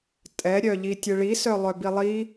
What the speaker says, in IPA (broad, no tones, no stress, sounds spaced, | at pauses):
tʼ ɛ ɾʲ œ ʎ i tʲ ɯ ɭ i s œ lˠ œ b i lˠ i